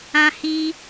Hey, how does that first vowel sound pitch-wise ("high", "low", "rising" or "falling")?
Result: high